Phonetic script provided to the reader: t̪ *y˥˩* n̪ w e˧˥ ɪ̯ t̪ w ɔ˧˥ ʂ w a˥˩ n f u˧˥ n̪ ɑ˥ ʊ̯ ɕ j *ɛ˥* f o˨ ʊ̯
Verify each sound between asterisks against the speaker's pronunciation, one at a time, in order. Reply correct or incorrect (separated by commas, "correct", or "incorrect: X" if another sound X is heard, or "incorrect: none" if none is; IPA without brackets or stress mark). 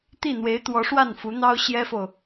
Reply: incorrect: i˥˩, correct